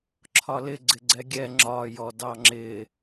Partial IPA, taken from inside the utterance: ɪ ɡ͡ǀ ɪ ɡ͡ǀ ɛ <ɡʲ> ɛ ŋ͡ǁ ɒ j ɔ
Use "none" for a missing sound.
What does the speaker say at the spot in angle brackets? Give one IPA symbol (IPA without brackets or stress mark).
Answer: ɡʲ